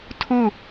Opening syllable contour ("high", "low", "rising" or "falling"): falling